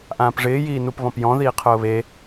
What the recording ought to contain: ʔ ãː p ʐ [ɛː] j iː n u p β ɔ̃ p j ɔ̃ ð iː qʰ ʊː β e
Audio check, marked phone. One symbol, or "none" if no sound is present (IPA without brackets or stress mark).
ɪː